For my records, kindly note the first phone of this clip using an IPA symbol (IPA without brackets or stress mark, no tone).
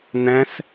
n̪